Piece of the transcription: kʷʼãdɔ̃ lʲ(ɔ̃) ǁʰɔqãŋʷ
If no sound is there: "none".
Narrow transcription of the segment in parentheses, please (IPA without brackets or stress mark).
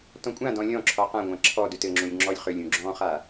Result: ɔ̃